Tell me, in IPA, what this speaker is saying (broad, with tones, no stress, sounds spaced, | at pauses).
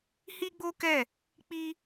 h i˦ ɡ͡b o˦ k ɛ˦˨ | k͡p i˦